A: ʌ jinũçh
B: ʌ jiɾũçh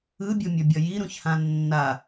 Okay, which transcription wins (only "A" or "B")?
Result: B